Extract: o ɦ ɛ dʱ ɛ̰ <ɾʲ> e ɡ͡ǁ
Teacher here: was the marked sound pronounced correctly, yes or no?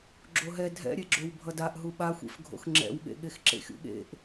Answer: yes